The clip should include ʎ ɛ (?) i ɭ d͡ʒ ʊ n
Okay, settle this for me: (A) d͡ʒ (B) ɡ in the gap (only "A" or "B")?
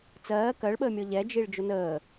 A